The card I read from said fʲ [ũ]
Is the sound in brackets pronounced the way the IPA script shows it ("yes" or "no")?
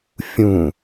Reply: yes